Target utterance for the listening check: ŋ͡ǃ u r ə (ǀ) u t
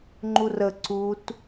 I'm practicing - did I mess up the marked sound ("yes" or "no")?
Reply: no